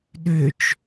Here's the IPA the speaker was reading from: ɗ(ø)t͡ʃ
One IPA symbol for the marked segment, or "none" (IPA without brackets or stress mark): ø